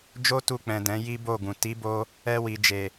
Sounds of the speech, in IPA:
d͡ʒ o˦ t u˧ k͡p ɛ̃˨ d ɛ̃˨˦ j i˦ b o˦˨ ɡ ũ˨ t i˨˦ b o˧ | ɛ˧ w i˨ d͡ʒ e˨

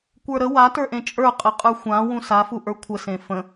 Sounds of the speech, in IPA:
kʷ ə˞ ɾ ə w a t ə˞ ʔ ẽ t͡ʃʼ ə˞ qʼ ə qʼ ə˞ xʷ ã w ũ s a f u ʔ ə˞ kʷʰ ə s ẽ f ə̃

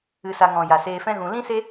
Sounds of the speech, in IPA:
ɨ˧ s a˧ ŋ ɔ̃˨ j a˨ s eː˧ f ɛ̃˦ ɣ ũ˧ l ĩ˦ s e˦

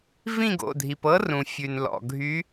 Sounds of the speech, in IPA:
v ĩ˦˨ ɡ o̰˩˧˩ dʱ i˩ p ɤ˧˥ r ũ˩ fʲ ʉ˩ n l ɔ̰˩ ɡʱ y˧˥

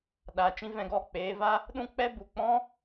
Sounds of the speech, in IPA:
ɗ a˧ t͡ʃ ĩ˧ v ɛ̃˧ ɡ ɔ˦˨ k͡p eː˧ v a˦ | ɗ ũ˦ k͡p ɛ˦ b u˨ k͡p ɔ̃˦

